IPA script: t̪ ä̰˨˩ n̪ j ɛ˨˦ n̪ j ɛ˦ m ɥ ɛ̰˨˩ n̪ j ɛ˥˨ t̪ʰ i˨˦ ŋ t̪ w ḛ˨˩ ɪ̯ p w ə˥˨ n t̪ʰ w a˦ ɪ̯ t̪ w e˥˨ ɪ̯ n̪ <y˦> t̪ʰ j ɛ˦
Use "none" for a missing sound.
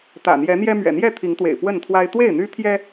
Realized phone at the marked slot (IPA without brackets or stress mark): y˦